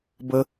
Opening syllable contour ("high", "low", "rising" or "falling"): high